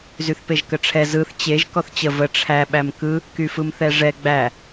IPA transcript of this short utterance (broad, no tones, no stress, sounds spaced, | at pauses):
z y θ p e ʒ k ə ʈ͡ʂʰ ɛ z ɯ θ t͡ɕ e ʒ k ɔ θ t͡ɕ ə v ə ʈ͡ʂʰ æ ɓ æ m k ɯ | k y f ɯ m θ ɛ ʐ ɛ ɡ͡b æ